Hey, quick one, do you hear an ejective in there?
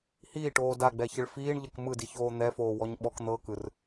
no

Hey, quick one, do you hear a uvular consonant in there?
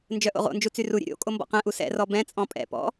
yes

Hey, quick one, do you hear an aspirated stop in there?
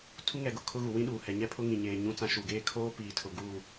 yes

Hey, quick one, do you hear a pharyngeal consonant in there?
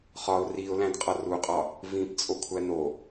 no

